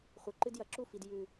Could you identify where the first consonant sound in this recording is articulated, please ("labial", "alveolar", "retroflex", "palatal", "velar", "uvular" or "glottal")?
uvular